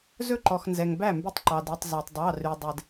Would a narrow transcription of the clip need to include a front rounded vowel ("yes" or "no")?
yes